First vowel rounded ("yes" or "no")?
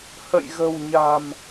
no